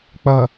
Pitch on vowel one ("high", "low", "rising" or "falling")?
low